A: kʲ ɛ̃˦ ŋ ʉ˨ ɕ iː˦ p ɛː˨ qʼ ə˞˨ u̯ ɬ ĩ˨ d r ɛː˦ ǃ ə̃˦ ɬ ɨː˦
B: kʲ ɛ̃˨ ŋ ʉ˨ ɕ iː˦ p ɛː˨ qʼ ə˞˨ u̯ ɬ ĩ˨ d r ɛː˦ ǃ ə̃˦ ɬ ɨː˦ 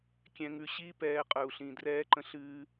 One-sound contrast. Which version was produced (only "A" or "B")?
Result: B